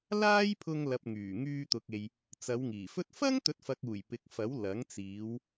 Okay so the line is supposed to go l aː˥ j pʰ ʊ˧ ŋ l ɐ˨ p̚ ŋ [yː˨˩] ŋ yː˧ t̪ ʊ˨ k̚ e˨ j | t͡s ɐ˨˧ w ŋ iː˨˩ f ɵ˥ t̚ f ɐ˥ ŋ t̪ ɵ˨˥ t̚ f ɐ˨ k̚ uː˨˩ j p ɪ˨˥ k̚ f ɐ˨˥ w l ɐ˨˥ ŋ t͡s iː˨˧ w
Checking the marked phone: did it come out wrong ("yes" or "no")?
no